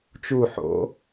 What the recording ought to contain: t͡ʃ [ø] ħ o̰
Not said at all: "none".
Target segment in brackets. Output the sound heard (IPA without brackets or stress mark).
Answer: u